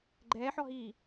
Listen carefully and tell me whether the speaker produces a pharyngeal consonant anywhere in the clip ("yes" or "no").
yes